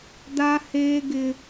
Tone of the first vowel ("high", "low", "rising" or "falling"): high